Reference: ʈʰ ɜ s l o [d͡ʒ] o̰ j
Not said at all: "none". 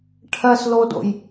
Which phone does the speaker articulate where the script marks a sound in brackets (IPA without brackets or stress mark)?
d